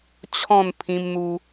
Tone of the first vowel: falling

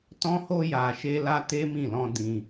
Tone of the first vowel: high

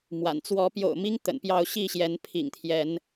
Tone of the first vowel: low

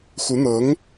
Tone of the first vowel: rising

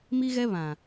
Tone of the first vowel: high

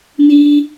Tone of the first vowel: high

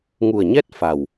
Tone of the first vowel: low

